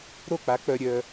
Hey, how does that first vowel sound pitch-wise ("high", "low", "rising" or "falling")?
falling